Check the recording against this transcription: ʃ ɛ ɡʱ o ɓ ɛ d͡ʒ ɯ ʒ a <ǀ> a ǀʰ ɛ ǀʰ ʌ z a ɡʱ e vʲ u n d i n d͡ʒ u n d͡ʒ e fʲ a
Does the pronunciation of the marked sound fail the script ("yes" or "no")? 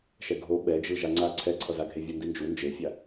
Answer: yes